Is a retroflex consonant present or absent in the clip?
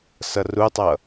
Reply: absent